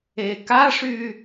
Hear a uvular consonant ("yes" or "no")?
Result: no